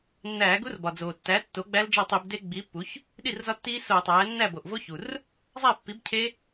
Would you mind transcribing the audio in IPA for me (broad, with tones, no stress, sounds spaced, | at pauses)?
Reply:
nː æː˧˩˧ ɡ u˦˥ r b ɒ˩ d͡z oː˩ tː æ˩˥ tː oː˩˥ ɡ͡b æ˦˥ l d͡ʒ ɒ˥˩ tˤ i˧˩˧ b d e˦˥ ɡ͡b iː˩˥ pː u˩˥ ç | ɗ i˥˩ r z ɒ˦˥ tː iː˦˥ s oː˧˩˧ tˤ æː˩˥ nː æ˥˩ b o˩ ʔ v o˦˥ ç u˩ r | zˤ æ˥˩ pː i˩˥ b cʰ e˦˥